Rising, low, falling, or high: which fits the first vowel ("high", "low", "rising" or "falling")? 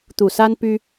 low